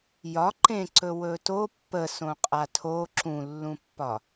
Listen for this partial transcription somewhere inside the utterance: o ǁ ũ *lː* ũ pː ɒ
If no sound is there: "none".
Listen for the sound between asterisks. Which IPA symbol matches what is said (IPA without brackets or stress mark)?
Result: lː